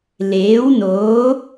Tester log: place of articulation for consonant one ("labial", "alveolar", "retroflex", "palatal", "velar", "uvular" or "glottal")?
alveolar